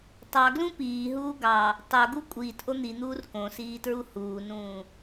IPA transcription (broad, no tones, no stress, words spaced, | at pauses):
tˤɑɡlũ piːɦuː ɡɑ | tˤoɡu kʷʼiːtʔo n̪in̪uːr kõsiːtɹu huːnũː